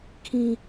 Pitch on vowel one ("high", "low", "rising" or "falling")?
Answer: high